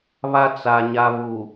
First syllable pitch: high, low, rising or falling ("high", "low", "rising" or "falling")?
high